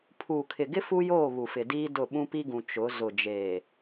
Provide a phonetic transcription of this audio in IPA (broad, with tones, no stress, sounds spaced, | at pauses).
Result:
pʰ uː˨ kʰ ɪ˨ ɡ ɪ˦ f u˦ j oː˦˨ β u˨ f ɪ˨ d iː˦ d ʊ˦˨ ɓ ũ˦ p i˦ ɡ ũ˨ t͡ʃ ʊ˨˦ z ʊ˨ d͡ʒ eː˨